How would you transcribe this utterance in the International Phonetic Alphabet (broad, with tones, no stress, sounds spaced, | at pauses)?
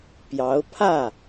p j ɑ˧˥ ʊ̯ pʰ ä˥˩